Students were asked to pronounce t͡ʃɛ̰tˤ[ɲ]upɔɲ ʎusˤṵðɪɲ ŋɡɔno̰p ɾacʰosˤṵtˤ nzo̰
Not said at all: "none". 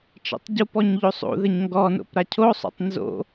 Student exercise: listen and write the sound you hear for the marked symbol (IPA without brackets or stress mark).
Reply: ɟ